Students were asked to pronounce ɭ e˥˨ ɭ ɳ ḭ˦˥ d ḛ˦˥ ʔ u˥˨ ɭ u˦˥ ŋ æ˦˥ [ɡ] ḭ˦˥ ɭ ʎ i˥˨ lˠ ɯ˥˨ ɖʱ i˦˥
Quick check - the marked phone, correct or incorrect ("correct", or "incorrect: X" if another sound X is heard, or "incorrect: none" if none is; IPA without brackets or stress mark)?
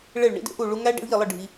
incorrect: ɖ